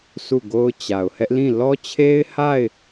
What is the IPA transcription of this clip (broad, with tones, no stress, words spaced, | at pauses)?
su˦˨ɡo˦ʊ̯t͡ɕa˨ʊ̯ hɛ˦ʔlĩ˦˨ lɔ˦t͡ɕʰe˦ɪ̯ha˦˨ɪ̯